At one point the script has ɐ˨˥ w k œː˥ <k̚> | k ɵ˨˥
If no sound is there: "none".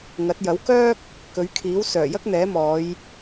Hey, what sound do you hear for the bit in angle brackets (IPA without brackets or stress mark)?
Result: k̚